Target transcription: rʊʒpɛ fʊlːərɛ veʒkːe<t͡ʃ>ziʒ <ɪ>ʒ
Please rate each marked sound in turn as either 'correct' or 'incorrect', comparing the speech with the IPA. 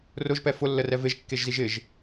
incorrect, correct

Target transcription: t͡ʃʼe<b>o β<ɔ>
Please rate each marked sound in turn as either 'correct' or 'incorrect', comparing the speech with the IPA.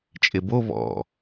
correct, incorrect

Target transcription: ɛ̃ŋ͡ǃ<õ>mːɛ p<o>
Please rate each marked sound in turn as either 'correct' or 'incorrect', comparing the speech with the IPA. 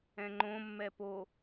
correct, correct

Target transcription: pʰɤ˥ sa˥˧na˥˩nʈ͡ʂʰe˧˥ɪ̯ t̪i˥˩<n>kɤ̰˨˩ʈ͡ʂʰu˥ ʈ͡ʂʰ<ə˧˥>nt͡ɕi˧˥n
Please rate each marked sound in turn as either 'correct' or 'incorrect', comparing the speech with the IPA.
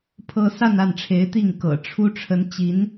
incorrect, correct

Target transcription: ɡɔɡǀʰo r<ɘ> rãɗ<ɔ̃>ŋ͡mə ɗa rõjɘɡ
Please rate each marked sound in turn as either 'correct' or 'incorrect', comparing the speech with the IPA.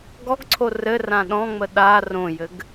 correct, correct

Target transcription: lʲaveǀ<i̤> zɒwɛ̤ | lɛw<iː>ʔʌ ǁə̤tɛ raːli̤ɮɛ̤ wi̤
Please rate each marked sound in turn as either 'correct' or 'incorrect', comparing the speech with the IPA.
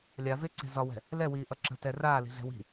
incorrect, correct

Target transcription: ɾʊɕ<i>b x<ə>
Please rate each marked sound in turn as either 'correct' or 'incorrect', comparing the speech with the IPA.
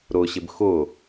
incorrect, incorrect

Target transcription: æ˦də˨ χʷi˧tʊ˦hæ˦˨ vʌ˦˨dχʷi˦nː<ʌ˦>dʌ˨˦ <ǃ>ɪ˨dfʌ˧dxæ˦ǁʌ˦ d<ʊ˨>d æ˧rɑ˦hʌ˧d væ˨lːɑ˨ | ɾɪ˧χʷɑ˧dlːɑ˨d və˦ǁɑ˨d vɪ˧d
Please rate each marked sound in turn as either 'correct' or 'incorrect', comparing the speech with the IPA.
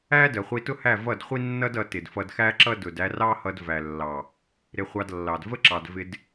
correct, incorrect, correct

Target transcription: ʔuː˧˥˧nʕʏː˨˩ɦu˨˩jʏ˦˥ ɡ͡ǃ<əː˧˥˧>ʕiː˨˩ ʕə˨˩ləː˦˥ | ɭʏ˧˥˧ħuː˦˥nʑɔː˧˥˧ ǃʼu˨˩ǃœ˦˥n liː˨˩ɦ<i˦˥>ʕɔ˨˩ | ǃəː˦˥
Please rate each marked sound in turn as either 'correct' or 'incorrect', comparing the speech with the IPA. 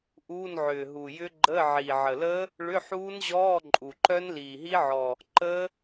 correct, correct

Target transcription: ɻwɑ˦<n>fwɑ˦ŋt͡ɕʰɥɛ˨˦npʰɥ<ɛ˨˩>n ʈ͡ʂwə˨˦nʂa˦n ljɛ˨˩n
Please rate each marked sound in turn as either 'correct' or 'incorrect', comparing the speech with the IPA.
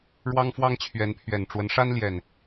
incorrect, correct

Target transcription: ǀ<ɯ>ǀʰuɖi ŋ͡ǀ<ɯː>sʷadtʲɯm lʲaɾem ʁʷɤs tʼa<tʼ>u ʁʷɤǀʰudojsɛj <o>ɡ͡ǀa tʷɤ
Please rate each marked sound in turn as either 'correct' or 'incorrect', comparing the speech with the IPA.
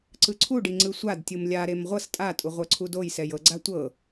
correct, incorrect, correct, incorrect

